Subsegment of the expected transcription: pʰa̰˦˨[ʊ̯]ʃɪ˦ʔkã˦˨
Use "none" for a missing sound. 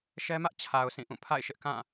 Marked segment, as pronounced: ɪ̯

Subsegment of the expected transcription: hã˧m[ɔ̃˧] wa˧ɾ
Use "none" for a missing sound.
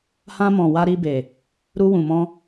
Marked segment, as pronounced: ɔ̃˨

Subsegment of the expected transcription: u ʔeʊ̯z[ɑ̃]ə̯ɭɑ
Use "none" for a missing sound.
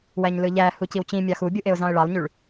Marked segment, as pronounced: ɑ̃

